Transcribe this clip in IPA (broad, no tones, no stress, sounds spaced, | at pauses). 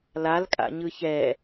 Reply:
l a l kʼ a̰ ɲ ɯ ç ɛ